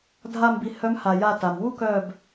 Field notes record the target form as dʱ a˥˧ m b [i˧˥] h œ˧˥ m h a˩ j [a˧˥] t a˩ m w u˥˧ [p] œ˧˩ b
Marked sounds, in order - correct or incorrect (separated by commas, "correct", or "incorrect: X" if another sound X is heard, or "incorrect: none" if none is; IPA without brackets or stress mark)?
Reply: incorrect: i˧, incorrect: a˧˩, incorrect: k